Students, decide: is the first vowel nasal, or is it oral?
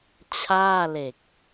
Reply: oral